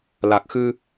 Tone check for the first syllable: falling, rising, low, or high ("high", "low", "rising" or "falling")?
low